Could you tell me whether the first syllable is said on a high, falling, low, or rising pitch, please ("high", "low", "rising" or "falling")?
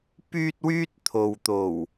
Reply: high